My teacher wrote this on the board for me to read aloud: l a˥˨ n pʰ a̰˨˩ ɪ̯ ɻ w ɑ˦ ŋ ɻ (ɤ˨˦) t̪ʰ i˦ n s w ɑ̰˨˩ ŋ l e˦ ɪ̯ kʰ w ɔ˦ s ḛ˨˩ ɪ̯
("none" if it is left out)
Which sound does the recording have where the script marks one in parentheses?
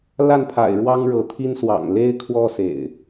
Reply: ɤ˨˦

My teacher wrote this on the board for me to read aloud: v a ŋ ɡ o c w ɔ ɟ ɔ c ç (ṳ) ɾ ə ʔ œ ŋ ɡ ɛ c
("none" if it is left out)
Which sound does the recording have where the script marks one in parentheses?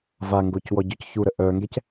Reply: u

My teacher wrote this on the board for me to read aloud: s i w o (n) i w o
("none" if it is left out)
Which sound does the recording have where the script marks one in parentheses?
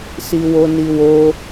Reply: n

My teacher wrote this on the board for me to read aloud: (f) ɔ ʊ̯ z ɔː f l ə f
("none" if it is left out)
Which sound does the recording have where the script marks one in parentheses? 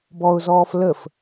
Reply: b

